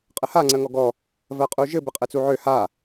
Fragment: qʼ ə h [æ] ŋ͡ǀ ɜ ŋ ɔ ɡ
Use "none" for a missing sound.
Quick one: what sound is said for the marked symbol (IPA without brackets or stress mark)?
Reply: a